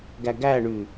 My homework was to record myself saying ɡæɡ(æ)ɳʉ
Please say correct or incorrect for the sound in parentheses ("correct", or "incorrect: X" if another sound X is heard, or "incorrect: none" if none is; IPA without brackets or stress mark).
correct